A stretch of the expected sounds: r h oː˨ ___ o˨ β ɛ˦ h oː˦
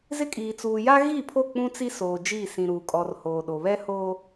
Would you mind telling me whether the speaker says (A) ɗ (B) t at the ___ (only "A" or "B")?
A